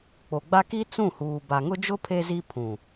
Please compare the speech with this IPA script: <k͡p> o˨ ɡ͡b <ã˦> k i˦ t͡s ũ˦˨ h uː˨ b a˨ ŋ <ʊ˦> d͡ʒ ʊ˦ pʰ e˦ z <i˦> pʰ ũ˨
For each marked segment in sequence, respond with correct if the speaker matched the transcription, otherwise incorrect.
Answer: correct, incorrect, correct, correct

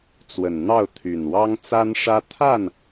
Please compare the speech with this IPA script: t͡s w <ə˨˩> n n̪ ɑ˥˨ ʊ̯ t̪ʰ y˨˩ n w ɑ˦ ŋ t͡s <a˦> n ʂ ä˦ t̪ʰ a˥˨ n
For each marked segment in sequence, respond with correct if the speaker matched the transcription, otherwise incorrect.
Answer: correct, correct

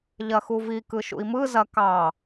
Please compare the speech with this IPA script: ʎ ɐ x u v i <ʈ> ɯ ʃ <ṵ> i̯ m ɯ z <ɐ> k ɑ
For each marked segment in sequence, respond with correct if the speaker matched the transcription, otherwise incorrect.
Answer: incorrect, correct, correct

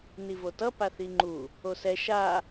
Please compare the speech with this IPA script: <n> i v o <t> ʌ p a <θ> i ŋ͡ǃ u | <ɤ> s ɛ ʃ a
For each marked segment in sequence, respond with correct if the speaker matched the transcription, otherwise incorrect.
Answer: correct, correct, correct, incorrect

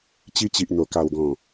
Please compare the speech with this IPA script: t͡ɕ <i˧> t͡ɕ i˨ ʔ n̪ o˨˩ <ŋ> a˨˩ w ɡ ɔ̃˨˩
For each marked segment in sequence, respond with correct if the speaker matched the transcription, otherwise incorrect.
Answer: correct, incorrect

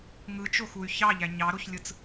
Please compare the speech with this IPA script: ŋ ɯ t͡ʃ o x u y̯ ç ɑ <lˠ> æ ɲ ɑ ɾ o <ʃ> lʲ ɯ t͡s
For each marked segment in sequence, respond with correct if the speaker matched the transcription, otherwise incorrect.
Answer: incorrect, incorrect

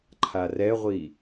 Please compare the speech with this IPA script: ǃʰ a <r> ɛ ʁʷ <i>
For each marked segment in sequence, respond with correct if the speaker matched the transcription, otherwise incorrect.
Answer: correct, correct

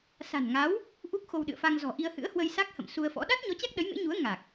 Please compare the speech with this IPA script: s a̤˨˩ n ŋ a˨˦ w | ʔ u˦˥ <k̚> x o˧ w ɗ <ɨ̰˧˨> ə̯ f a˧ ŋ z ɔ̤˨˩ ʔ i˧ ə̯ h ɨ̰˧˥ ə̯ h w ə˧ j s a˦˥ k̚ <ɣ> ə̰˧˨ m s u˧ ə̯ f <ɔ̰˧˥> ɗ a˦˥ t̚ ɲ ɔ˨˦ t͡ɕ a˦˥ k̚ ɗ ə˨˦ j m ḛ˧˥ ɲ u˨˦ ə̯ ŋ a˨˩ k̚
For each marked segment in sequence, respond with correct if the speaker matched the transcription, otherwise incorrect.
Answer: correct, correct, incorrect, correct

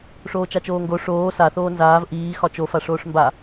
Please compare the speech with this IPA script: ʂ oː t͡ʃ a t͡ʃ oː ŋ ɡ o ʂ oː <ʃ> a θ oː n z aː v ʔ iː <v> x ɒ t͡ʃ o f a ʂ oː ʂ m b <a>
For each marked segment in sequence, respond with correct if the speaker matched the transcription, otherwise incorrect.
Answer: incorrect, incorrect, correct

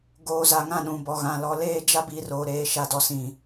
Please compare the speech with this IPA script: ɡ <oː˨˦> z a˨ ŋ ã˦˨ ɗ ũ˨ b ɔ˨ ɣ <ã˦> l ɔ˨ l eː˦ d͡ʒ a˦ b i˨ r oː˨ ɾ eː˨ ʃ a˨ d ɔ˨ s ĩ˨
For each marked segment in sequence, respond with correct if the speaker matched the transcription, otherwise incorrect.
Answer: incorrect, incorrect

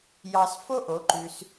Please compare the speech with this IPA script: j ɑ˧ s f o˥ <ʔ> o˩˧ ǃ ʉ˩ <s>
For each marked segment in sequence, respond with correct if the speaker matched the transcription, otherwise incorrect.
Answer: correct, correct

